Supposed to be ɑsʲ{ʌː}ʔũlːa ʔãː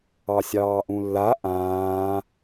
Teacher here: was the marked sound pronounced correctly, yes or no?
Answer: no